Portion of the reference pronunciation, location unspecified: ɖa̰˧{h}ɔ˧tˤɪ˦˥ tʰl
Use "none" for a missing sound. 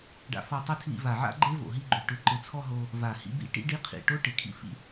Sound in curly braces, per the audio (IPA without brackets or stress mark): f